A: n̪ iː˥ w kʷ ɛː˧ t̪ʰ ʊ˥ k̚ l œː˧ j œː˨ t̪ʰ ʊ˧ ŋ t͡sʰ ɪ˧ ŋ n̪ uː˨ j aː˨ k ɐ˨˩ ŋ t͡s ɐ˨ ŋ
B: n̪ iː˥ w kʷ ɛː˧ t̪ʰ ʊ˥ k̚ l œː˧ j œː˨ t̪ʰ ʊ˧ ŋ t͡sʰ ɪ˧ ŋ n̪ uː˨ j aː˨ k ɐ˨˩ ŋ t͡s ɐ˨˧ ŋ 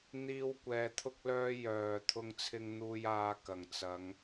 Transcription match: B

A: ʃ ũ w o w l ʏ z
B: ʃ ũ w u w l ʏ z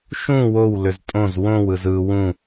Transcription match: A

